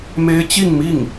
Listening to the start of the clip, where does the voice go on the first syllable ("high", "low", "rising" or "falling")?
high